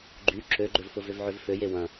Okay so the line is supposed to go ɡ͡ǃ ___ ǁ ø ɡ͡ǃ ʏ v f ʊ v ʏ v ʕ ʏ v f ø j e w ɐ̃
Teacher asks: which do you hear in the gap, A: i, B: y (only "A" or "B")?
B